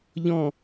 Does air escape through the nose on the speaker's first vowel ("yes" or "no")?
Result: yes